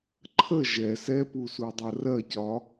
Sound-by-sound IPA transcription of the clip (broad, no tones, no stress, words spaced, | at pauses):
ǃʰə ʒɛ sɛpusudˤɜ rɜcɒ